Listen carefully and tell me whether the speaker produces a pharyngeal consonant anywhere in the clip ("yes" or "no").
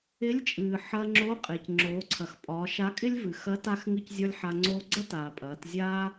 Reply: yes